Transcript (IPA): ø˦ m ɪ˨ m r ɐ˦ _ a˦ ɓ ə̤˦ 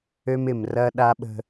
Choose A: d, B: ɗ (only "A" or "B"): B